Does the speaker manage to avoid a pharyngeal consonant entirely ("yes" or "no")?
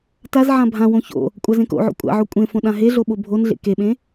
no